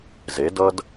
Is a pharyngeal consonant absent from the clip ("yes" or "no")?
yes